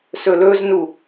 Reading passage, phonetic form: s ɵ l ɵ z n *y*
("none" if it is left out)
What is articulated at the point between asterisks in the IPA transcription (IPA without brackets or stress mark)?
u